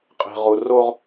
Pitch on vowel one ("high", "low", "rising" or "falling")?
low